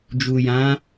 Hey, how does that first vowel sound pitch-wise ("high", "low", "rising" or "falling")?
low